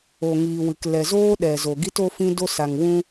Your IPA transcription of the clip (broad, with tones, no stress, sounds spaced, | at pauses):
o˨ ŋ iː˨ w ɨ˨ k l ɛ˨ z oː˦ ɗ ɛ˨ z o˨ ɡ i˦ t o˦ f ĩ˦ d o˧ s a˨ ŋ w ũ˧